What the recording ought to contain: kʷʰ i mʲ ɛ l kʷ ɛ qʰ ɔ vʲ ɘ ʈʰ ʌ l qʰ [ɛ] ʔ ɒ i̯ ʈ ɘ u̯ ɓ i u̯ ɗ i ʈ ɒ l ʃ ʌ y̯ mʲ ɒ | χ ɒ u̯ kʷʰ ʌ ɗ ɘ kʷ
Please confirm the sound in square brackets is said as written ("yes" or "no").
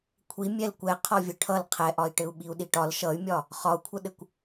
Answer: yes